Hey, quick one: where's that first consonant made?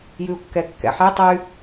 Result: palate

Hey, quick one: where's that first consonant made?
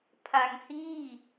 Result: lips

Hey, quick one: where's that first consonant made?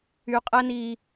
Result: uvula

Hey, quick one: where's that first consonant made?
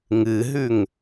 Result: velum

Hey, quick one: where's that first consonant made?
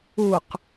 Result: uvula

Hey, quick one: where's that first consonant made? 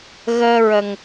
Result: velum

